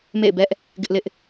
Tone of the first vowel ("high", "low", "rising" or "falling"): falling